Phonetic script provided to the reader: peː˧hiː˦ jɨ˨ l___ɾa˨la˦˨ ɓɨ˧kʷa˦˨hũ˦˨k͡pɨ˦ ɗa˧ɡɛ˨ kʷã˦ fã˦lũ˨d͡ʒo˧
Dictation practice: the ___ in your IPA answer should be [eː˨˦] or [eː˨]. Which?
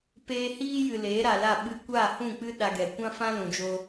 eː˨˦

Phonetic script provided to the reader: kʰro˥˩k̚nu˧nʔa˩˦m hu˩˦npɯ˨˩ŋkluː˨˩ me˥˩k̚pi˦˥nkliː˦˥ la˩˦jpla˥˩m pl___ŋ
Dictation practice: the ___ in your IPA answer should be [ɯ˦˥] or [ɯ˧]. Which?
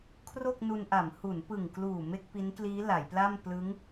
ɯ˦˥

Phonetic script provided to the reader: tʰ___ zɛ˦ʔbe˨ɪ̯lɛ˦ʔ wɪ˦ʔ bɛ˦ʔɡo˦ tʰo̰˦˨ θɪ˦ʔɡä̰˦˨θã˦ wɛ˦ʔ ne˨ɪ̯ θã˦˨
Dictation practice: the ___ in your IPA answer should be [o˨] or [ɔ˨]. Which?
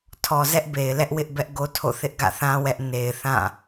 ɔ˨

